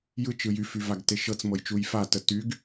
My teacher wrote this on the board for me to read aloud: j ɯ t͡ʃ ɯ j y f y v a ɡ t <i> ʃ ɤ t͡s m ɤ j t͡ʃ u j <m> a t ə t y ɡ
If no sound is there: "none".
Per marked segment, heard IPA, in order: e, f

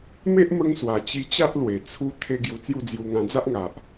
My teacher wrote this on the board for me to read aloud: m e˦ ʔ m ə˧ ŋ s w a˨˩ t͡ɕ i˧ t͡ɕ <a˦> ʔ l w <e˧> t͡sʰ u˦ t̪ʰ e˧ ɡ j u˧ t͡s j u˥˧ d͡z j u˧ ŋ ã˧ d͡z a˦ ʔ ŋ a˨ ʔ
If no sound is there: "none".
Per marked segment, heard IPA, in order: a˦, e˨˩

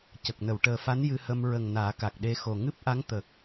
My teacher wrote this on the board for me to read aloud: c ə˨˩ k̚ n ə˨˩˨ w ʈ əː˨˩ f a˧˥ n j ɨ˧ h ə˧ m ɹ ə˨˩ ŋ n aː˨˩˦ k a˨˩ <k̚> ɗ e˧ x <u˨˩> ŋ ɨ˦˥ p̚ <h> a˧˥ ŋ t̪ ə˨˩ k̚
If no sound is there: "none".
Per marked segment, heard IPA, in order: k̚, o˨˩, ʔ

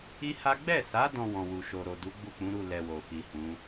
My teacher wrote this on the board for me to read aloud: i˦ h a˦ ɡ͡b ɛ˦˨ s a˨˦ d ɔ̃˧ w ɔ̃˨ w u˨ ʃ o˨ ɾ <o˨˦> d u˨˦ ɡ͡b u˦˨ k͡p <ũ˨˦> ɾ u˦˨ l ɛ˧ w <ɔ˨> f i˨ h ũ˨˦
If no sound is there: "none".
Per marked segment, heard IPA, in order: o˨, ũ˨˦, o˨

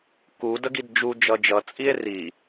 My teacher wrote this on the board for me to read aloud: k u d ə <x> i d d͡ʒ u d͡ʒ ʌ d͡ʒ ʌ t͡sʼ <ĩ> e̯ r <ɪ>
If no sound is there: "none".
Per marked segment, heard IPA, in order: ɡ, i, i

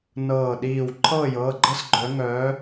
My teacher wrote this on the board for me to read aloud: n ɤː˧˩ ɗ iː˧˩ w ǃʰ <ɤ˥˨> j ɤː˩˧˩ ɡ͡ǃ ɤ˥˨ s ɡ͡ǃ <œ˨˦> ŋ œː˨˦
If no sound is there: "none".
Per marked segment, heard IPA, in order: ɤː˥˨, œ˨˦

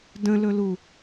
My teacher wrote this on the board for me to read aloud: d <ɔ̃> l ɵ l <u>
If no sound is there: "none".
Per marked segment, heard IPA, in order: ə̃, u

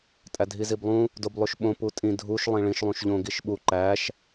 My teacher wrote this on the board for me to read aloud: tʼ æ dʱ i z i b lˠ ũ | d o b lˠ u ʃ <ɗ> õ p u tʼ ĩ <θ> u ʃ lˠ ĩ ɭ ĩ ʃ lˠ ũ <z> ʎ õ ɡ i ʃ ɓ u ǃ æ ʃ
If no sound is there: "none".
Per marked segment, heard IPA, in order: ɓ, dʱ, ʃ

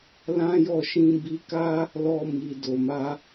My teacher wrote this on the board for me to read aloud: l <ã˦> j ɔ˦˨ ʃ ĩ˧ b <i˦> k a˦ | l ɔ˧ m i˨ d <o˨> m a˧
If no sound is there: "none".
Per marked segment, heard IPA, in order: ã˦, i˧, o˨

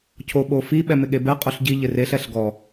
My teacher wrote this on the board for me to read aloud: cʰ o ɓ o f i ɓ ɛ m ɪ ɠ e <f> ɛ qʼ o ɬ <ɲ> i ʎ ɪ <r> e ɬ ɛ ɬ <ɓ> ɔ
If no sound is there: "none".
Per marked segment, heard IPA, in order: b, ɟ, r, ɡ

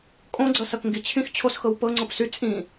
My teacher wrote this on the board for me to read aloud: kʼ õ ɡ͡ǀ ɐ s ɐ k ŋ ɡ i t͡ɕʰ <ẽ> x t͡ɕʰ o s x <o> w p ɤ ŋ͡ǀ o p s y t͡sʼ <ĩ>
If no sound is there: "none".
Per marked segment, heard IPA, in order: ĩ, ɤ, ĩ

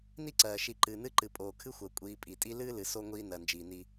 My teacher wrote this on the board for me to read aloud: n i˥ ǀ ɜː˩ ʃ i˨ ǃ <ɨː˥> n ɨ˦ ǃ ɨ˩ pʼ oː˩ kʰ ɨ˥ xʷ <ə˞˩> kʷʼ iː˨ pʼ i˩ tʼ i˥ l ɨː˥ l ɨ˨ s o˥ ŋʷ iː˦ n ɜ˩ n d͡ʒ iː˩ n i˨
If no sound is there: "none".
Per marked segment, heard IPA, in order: ɨː˩, ɜ˩

